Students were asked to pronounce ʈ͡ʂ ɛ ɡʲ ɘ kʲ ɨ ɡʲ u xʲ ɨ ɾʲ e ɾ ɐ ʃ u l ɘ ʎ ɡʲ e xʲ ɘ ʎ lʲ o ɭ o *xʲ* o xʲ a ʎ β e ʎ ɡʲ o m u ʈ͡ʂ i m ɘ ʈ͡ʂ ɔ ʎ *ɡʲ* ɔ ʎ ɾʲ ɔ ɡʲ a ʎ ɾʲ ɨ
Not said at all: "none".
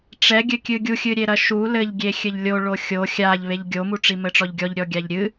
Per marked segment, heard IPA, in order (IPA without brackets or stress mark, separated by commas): xʲ, ɡʲ